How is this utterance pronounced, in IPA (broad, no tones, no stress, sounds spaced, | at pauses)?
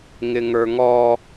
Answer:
ŋ ɪ ŋ ə˞ ŋ ɔ